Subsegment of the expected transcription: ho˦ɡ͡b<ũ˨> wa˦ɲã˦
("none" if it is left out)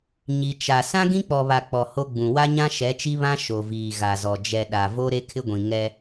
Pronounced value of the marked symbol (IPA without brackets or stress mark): ũ˨